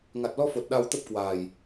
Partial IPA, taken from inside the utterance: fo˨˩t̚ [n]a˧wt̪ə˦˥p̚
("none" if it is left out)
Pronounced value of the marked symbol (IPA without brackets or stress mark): ɗ